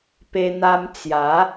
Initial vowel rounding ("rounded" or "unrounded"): unrounded